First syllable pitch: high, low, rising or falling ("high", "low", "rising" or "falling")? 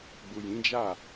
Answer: low